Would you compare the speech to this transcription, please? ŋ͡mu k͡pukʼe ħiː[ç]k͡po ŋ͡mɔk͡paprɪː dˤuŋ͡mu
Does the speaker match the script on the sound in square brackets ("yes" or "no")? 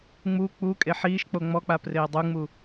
no